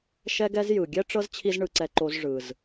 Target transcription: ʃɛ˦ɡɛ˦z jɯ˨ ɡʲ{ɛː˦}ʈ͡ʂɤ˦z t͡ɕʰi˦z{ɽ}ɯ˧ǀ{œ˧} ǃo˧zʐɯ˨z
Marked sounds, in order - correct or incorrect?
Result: incorrect, incorrect, incorrect

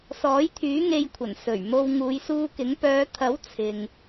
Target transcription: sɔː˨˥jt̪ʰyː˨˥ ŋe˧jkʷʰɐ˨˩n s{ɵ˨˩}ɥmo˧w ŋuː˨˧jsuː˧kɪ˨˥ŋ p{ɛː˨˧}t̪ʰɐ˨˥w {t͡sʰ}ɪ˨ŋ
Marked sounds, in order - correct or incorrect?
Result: correct, incorrect, correct

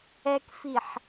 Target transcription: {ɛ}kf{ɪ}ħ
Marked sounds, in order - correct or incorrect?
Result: correct, incorrect

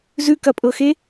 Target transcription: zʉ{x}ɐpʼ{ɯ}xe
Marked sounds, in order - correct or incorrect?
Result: incorrect, incorrect

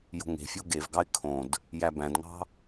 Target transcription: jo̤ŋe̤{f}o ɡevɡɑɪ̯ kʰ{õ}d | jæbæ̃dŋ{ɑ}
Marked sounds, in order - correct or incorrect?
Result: incorrect, correct, incorrect

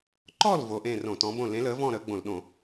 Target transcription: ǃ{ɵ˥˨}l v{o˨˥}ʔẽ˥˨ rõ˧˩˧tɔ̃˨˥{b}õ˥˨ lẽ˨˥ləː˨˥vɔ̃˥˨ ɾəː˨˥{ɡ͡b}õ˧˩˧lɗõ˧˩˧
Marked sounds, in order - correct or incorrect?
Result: incorrect, correct, correct, correct

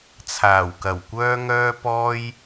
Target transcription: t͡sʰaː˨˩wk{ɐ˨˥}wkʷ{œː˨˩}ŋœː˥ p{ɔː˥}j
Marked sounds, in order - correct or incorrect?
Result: incorrect, incorrect, correct

